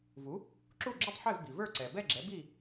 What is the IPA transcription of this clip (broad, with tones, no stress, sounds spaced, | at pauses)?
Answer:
v u˩˥ | ǁ u˥˨ ɡ͡ǁ u˥˨ tˤ ħ e˥˨ v b i˩ v ə˞˥˨ ǀ ɛ˩ b ɛ˥˨ ɡ͡ǁ ɛ˩˥ b i˥˨